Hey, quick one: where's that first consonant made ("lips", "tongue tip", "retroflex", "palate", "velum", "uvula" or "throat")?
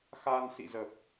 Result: velum